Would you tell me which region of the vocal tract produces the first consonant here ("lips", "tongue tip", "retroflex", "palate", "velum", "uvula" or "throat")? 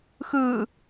velum